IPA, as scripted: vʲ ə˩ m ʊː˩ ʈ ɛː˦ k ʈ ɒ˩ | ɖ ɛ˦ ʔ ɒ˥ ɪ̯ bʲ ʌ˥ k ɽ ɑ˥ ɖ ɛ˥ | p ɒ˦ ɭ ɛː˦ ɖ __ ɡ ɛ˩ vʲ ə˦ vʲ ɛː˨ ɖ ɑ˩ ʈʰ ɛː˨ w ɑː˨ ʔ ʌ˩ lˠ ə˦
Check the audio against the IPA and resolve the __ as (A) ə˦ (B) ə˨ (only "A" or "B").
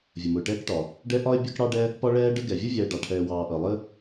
A